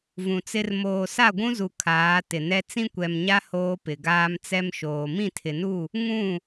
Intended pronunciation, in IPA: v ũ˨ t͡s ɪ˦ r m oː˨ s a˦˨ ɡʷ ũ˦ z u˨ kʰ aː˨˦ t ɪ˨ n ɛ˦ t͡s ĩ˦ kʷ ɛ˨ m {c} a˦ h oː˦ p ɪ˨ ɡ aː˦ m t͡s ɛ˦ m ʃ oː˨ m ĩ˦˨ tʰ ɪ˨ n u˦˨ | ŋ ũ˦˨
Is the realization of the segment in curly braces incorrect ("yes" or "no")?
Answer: yes